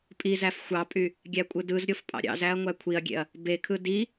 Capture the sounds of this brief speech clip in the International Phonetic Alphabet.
pʼ i z æ f xʷ ɑ pʼ y | ɡʲ æ kʷʼ ɯ d ɯ z ɾʲ o f pʼ ɑ̰ ɾʲ ɑ̰ z æ ɐ̯ ŋʷ æ kʷʰ i ɐ̯ ɡʲ ḛ ɐ̯ | b e kʰ ɯ d i

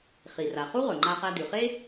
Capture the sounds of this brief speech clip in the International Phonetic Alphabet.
χ i˩ r a˩ χ u˥ ʁ ɵ˩ ŋ͡ǃ a˧ χ a˧ d ʉ˩ χ e˥

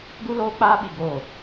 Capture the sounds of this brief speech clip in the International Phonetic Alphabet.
ɡ u˦ l oː˦ k͡p aː˦ ɓ i˨ ɡ oː˨

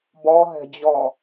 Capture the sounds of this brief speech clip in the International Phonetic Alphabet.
b ɔ ɦ ɛ̤ d͡ʑ ɔ

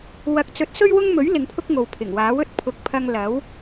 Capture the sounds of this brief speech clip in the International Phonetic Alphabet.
w ɐ˨˥ k̚ t͡s ɵ˨˥ t̚ s ɵ˥ ɥ w ʊ˥ ŋ m ɵ˨˥ ɥ l ɪ˨˧ ŋ pʰ ʊ˥ k̚ ŋ o˨ w pʰ ɪ˨˩ ŋ w aː˨˥ w ɵ˥ t̚ pʰ ʊ˨˥ k̚ pʰ ɐ˧ ŋ l ɐ˨˥ w

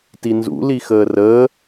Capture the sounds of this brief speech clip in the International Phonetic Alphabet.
t i n z ṵ l i x əː r əː

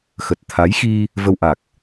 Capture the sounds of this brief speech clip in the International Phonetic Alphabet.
x ə˨˩ t̚ t̪ʰ a˨˦ j x i˧ | v ə˧ w ʔ a˨˩ k̚

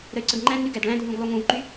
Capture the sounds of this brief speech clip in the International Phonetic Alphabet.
ɾ ə y̯ ǀ ə ɡ ŋ͡ǃ æ̃ d n y ɡ æ d ɭ æ̃ dʱ ũ ɡ lˠ u ŋ ũ v ǃ y

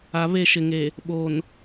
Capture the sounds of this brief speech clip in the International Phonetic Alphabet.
a˨ β e˦˨ ʃ ɪ˨ ŋ e˨ | ɓ o˨ n

